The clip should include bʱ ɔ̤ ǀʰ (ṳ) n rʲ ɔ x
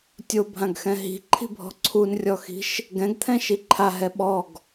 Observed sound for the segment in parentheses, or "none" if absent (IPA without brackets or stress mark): u